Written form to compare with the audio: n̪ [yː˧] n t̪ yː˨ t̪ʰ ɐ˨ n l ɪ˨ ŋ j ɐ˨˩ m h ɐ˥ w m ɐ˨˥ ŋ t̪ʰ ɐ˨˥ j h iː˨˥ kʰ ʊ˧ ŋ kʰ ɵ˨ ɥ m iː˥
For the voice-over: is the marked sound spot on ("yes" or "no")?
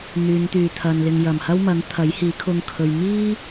no